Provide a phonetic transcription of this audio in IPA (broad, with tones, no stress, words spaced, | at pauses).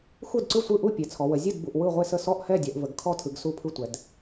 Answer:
xu˥˩dǀɯ˥˩sʷɯ˥˩ ʔu˥˩pʲe˩˧t͡sʰɔ˩˧wə˩˧ zʲɯ˥˩dbu˩˧ʔ wɯ˥˩ʁʷe˥˩sə˥˩ sɔ˥˩ʔhɛ˥˩ dʲɛ˩˧ʔvə˩˧ɡkʰɔ˥˩tʰɯ˩˧ɡ su˥˩pʰɯ˥˩tʷɛ˩˧d